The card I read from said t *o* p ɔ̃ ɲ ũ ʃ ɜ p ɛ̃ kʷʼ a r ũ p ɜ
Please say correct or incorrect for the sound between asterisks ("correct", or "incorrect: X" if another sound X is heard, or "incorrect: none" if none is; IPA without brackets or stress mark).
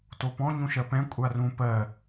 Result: correct